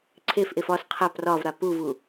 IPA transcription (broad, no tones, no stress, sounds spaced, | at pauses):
ǀʰ e f ʔ e f ɒ s qʰ a p r ɒ v ɾ a p u v u